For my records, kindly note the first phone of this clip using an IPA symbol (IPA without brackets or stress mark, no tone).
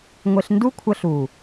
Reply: ŋʷ